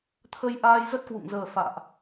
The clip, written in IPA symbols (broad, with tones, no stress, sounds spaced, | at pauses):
t̪ʰ ə˧ j ʔ aː˧ j z ə˦˥ t̚ k w ṵ˧˨ ŋ z əː˨˩ f a̰ː˧˨ ʔ